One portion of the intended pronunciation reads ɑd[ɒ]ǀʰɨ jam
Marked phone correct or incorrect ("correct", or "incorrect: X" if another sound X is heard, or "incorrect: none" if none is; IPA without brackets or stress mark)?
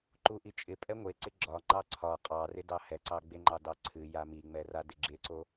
incorrect: ɑ